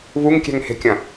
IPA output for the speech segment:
β u ŋ kʲ ɛ̤ ŋ h e̤ kʲ ɐ̃

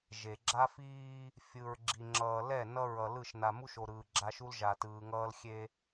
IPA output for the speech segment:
ʒ e˨ ɡ͡ǁ a˦ f iː˦ | fʲ ɯ˨ ɹ ɡ͡ǁ i˨ ŋ͡ǁ ʌː˨ l ɛ˦˨ n ʌ˦ ɹ ʌ˨ l ɯ˦˨ ʃ n a˨ m u˦ ʃ o˨ ɾ ɯː˨ ɡ͡ǁ a˦ ʃ u˦ l ʒ a˨ t ɯː˨ ŋ ʌː˦ l xʲ e˦

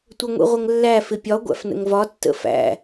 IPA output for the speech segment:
tʷ ə ŋʷ ḭ ʁʷ ə ŋ lː æ f ɪ pʲ ɒ ɡʷ æ̰ f n ə̰ ŋ v ɒ tː ə̰ f æ̰

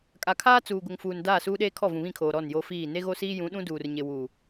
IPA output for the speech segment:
kʼ a˨ kʰ aː˦ t͡s uː˨ ɡ ʊ˨ ŋ f uː˨ n d aː˦˨ s uː˦ ɗ eː˦ kʰ ɔ˦˨ v ũ˨ β ĩ˦˨ kʰ oː˨ ɾ ɔ˦˨ n j o˦ f iː˦˨ n e˦ ɣ o˦ s iː˦ j ũ˨˦ ɗ ũ˦ d uː˨ r ɲ ɪ˨ w uː˨

